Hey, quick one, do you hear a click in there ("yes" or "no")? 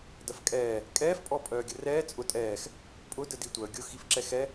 yes